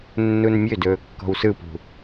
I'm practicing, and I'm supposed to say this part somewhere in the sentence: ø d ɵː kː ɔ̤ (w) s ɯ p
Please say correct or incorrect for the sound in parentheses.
correct